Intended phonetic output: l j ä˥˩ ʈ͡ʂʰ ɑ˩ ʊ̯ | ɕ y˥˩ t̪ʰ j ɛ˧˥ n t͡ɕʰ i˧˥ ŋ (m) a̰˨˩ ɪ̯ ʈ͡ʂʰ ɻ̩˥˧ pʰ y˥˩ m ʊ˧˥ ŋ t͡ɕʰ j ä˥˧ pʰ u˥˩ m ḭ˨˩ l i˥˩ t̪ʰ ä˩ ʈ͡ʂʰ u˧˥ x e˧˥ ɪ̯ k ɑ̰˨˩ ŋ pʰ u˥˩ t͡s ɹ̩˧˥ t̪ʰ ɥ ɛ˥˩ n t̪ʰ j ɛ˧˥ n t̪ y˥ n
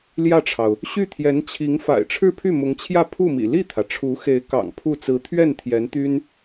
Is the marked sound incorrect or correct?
incorrect